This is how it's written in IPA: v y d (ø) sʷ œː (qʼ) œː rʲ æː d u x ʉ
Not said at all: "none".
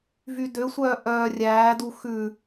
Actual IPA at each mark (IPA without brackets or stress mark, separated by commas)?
ø, ʔ